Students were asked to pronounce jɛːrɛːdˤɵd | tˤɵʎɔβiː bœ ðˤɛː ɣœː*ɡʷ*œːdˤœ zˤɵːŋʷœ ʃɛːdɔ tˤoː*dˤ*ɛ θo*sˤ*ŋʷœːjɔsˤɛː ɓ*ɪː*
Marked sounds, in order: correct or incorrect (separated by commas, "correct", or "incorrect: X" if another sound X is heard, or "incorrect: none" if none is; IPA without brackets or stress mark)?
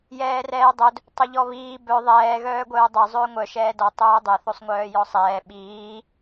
correct, correct, correct, incorrect: iː